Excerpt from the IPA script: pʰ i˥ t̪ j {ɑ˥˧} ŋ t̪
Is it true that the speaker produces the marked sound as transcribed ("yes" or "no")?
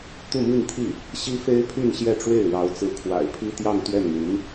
yes